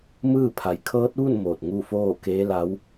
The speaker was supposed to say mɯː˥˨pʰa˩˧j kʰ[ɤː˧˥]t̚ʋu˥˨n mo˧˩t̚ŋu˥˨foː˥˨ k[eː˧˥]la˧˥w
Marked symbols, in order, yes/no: yes, yes

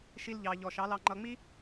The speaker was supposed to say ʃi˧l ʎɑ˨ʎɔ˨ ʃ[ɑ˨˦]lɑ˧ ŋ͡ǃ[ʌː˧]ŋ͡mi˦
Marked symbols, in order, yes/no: yes, no

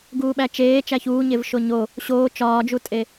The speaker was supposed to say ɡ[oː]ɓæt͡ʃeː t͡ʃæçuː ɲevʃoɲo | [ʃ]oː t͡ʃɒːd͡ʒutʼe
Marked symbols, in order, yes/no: no, no

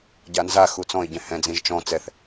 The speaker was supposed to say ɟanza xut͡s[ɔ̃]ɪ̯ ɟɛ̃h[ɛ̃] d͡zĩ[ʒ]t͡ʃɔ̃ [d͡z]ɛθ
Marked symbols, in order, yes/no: yes, yes, yes, no

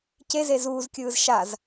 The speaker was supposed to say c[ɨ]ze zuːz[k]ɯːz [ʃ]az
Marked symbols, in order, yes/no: no, no, yes

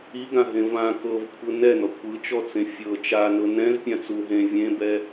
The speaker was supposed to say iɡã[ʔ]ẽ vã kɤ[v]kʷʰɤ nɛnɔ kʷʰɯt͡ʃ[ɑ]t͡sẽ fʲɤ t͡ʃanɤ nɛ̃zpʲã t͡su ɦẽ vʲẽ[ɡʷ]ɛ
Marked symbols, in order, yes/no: no, yes, no, no

